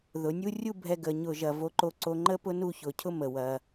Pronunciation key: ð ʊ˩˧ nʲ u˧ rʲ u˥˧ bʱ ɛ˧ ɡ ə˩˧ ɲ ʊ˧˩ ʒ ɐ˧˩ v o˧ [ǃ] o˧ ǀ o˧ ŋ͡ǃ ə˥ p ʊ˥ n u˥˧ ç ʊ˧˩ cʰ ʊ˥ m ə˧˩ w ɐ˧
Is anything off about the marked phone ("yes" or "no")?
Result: no